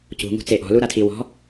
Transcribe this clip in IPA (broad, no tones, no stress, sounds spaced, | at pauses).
c ṳ ŋ ṳ t͡s e ʔ ɔ̤ l u ɾ a tʰ i w ɔ̤